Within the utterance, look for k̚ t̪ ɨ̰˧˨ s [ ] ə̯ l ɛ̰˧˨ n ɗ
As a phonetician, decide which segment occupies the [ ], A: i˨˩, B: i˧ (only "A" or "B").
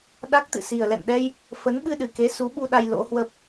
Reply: A